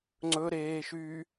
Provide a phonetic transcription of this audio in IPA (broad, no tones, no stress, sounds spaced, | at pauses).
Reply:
ŋ͡ǀ ɵ ɾ eː ʃ yː